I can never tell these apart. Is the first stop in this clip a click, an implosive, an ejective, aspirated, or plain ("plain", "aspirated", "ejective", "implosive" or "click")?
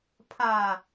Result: aspirated